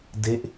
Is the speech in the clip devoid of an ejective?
yes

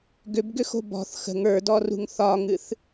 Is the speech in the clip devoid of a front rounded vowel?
no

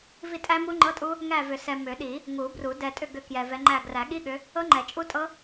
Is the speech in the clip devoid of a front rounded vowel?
no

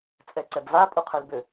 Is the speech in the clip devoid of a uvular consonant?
no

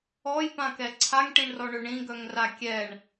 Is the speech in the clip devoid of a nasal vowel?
no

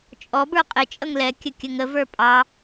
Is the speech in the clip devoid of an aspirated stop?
yes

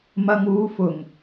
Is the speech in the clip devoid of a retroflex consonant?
yes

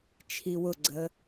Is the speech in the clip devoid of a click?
no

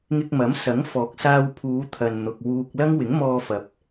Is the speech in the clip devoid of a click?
yes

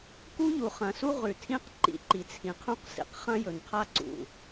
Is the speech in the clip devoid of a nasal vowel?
no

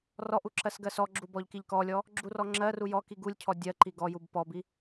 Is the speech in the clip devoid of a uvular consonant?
yes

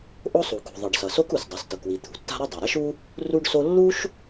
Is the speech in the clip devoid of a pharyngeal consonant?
yes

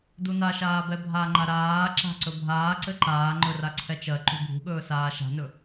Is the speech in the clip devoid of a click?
no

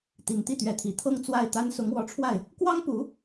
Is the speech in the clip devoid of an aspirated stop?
no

